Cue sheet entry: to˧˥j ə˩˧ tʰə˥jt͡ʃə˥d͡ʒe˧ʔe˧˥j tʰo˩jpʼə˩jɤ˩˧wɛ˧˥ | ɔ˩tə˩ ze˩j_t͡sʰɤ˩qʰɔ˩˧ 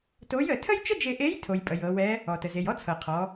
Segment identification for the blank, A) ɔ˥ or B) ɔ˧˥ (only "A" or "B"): A